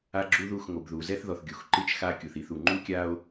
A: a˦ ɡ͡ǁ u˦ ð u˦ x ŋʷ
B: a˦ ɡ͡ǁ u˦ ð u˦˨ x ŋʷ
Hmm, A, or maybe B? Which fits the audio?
B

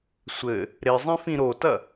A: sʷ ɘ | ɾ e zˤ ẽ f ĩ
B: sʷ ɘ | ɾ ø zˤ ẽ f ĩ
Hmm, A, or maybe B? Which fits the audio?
A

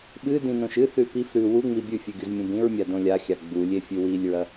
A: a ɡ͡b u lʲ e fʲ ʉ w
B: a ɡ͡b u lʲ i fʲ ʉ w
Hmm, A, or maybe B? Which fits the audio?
A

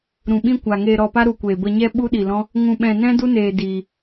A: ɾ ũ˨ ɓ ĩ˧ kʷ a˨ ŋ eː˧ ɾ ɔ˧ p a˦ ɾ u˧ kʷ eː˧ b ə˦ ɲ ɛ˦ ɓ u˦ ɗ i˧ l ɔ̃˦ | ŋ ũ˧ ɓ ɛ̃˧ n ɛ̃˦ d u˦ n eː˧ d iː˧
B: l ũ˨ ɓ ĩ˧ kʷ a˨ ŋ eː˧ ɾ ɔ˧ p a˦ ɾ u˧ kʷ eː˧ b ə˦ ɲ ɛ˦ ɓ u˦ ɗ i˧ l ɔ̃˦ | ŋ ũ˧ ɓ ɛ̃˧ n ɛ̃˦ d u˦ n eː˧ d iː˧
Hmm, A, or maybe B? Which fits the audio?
A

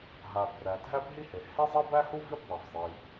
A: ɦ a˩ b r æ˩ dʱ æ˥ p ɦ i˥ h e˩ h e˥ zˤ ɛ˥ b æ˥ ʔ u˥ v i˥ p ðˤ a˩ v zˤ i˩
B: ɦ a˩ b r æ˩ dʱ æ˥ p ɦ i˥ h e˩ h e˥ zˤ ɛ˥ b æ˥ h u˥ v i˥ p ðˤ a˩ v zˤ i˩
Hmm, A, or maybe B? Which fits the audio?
B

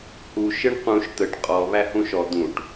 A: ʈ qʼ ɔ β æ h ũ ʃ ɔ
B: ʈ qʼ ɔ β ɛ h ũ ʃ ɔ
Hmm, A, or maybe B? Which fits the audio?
A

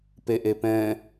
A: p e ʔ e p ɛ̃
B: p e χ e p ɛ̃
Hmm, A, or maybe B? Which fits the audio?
A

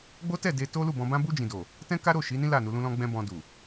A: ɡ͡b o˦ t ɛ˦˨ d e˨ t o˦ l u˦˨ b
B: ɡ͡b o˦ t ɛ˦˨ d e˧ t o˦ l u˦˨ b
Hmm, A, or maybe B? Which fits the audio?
B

